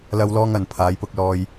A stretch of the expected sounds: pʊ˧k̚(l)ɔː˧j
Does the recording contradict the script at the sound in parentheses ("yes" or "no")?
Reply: no